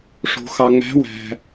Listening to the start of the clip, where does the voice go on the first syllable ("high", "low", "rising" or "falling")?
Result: low